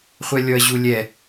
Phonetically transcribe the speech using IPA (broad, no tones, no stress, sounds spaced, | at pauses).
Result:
χʷ ɛ lʲ ɔ ɐ̯ ʑ u lʲ ɛ